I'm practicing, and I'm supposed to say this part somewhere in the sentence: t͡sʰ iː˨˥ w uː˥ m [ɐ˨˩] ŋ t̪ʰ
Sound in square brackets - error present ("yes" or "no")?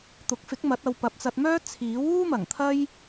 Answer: no